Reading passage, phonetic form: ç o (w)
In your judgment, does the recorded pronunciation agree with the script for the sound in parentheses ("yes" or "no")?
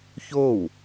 yes